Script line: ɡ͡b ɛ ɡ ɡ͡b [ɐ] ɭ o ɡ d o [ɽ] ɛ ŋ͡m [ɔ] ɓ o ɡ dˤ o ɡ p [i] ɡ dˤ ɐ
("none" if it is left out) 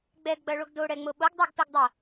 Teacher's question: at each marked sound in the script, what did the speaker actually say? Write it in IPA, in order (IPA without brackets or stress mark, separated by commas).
ɐ, ɽ, o, i